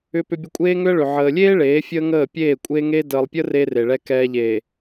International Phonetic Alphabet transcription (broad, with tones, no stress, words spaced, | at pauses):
ʏ˦pʏ˦bʲə˦ kʷʼeː˦ŋʏ˦ə̯ɭʏ˨ ʕəː˨lʲeː˦ ɭeː˨˦fʲəː˦ŋəː˦˨ pʲeː˦˨kʷʼeː˦ŋe˦ dəː˨lˠpʲə˦ re˦re˨ɭɛ˦kɛː˦ ʎe˨